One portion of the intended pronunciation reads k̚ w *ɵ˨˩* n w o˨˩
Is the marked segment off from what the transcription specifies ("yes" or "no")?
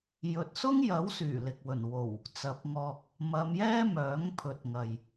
no